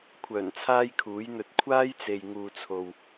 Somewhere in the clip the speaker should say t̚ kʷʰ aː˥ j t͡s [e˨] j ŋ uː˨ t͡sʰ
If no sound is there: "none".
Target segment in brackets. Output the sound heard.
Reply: e˨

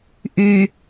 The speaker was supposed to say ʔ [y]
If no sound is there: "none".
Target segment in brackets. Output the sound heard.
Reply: y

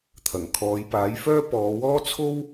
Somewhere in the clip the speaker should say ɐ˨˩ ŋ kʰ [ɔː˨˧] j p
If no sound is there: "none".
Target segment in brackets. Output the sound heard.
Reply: ɔː˨˧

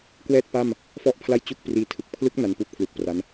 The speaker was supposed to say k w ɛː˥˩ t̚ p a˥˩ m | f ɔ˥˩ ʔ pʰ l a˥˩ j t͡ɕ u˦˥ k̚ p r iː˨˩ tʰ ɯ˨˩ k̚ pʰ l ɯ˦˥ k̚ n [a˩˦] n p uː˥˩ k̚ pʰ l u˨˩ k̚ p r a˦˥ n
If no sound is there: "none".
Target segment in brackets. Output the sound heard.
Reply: a˧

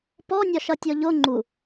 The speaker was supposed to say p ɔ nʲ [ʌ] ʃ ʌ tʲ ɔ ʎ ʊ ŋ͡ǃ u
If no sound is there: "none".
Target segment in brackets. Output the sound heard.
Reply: ɒ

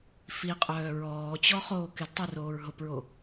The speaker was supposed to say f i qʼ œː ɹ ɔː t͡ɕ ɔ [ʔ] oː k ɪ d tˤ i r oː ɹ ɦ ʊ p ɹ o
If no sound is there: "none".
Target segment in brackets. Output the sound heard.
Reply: χ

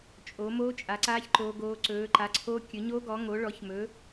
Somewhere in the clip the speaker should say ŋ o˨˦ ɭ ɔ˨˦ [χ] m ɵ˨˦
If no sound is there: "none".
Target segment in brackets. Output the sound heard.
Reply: ç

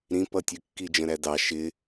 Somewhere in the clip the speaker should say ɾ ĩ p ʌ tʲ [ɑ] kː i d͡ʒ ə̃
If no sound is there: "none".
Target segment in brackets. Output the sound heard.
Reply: ə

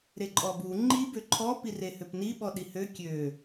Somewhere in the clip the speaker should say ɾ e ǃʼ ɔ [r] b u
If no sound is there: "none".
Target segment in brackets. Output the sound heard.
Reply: none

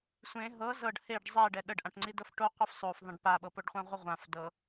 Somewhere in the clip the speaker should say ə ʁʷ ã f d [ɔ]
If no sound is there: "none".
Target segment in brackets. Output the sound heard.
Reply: ɤ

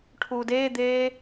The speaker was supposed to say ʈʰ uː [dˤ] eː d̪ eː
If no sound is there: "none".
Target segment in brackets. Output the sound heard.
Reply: d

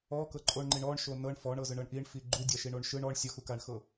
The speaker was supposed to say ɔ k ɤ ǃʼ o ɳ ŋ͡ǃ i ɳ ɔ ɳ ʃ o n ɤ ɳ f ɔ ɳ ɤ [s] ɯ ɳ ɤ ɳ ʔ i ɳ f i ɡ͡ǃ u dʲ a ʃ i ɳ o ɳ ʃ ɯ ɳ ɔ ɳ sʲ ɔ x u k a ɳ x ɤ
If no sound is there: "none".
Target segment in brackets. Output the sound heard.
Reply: z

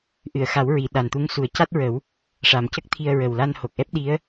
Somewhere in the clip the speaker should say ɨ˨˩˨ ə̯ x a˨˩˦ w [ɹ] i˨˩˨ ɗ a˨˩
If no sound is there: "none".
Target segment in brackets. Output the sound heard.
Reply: ɹ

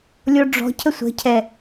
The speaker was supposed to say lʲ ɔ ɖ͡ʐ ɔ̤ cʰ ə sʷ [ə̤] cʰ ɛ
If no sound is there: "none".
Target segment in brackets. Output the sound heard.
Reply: ə̤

